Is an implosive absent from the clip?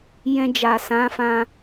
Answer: yes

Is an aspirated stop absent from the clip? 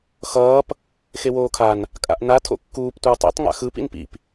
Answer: no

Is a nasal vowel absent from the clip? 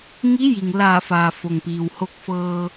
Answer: yes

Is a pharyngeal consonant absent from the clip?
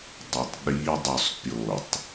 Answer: yes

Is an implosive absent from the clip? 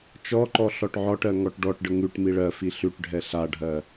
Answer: yes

